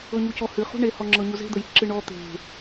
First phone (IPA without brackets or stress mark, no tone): ɤ